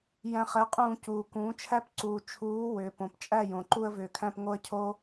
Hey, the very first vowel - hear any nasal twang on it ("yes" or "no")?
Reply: yes